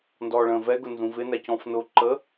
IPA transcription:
n d ɔː ɭ ə̃ː v ɛ ɡ ʊ n z ũ v ɪ n æ c ɔ̃ f n ʊ ǃ ə

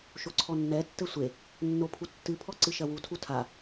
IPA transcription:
ʃ o ǀʰ ɔ nː ɛ tː ɘ sʷ e | nː o pʰ u tː ɨ pʰ ɔ ǀ ɨ ʃ ɐ w u tʰ u tʰ a

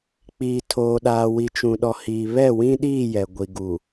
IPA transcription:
k͡p iː˨ tʰ oː˨ ɗ aː˨ w i˨ t͡ʃ ũ˨ ɗ ɔ˨ h iː˨ β ɛ˦˨ w ĩ˦ ɗ iː˦˨ j ɛ˨ ɡʷ i˨ ɡ u˨

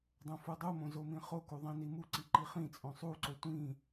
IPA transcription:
dˤ õ f u dˤ u m õ z o m ĩ χ o k u ðˤ ĩ n i m u ǀ i ǃ i χ ĩ t͡sʼ õ sˤ u ǀ o tʷ ĩ

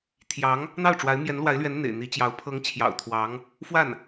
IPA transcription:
t̪ʰ j ɑ˧˥ ŋ | n̪ ɑ˥˩ ʊ̯ ʈ͡ʂ w a˧˥ ɪ̯ m j ɛ˧˥ n l w a˧˥ ɪ̯ l ɥ ɛ˧˥ n n̪ ḛ˨˩ ɪ̯ n̪ i˧˥ t͡ɕ j ɑ˧˥ ʊ̯ pʰ ɤ˧˥ ŋ t͡ɕʰ j ɑ̰˨˩ ʊ̯ t̪ʰ w ɑ˧˥ ŋ | f w a˥˩ n

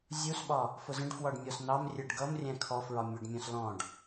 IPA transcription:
zʲ u s ɓ ɒ | f ʊ z ə̃ ɖ f w ɒ ɖ mʲ ɔ s n̪ ɑ m rʲ ɛ ɖ ɡ ʌ m rʲ æ̃ kʰ ɔ f ɹ ɒ mʲ ʊ ɖ mʲ ɔ̃ s l ɔ̃ ɖ

